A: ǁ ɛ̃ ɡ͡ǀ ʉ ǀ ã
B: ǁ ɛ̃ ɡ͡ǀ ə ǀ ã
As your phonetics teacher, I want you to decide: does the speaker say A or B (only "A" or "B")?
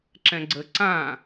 B